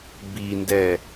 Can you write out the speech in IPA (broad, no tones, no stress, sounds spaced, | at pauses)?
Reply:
b i n d ɛ